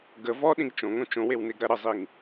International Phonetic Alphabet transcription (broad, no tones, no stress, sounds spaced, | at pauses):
ɡ ə v ɔ ɗ ĩ ɡ t͡ʃ õ ŋ õ t͡ʃ õ w e w n e ɡ ɾ ɐ ɾ ə zˤ i ŋ